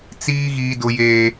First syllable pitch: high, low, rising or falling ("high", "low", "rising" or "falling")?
high